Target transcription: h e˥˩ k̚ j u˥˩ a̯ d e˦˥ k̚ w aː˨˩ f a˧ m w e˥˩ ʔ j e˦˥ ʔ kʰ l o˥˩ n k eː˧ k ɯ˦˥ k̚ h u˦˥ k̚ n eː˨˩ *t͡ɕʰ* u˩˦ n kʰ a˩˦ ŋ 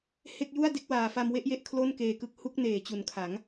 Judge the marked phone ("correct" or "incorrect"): incorrect